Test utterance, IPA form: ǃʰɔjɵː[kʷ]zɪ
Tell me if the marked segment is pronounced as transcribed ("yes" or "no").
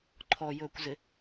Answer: yes